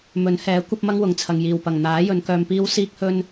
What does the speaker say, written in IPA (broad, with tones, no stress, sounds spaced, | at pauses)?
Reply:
m ɵ˨˥ n h ɛː˨˥ kʷ ɐ˥ p̚ m ɐ˥ ŋ w ʊ˨ ŋ t͡sʰ ɐ˨ ŋ j iː˨˩ w p ɐ˨˩ ŋ n̪ aː˨˥ j ɵ˨˧ n k œː˧ m p iː˥ w s iː˧ k̚ h ɵ˧ n